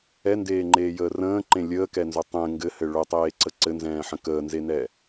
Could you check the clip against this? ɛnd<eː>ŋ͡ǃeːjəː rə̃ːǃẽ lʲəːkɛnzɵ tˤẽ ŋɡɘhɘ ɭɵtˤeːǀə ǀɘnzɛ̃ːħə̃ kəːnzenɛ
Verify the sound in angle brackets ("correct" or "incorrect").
correct